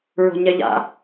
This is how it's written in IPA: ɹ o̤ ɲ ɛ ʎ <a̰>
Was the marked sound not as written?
no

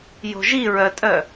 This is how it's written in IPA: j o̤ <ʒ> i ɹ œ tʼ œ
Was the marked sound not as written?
no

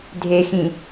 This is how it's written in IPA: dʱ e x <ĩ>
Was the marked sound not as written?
no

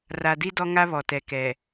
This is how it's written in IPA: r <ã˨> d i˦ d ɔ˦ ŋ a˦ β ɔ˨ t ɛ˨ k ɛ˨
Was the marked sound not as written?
yes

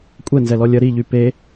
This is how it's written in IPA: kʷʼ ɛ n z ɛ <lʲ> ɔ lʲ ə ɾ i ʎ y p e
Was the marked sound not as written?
yes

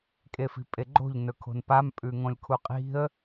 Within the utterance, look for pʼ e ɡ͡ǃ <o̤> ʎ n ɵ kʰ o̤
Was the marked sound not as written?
no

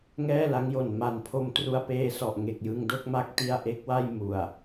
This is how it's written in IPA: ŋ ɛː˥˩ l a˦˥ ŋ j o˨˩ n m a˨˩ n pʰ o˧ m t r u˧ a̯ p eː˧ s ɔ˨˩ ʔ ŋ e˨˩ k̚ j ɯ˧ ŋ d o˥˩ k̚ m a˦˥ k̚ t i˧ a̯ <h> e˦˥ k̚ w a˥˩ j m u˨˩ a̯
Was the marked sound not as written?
yes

